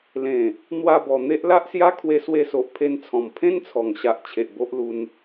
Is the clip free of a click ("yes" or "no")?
yes